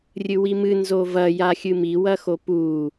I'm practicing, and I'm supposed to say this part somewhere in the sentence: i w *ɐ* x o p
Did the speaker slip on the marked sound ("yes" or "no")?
no